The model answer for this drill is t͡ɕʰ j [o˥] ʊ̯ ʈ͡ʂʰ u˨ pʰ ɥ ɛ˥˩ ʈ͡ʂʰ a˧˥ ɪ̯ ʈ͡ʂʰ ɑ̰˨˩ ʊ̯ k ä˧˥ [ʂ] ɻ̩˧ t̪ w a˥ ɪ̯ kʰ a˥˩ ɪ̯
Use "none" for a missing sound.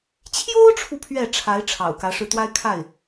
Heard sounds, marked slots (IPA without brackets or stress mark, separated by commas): o˥, ʂ